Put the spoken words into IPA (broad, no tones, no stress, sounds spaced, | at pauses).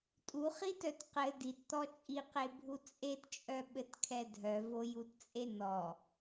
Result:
tʼ u χ i t œ t q ɘ d i t t̪ ɔ t͡ʃʼ i q e bʱ u t͡sʼ e t t͡ʃʼ œ ɓ ɘ t kʰ ɛ dʱ œ v o j u t t͡sʼ e n ɔ